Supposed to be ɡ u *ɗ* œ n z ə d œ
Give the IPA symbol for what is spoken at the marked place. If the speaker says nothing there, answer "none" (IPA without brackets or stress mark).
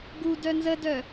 d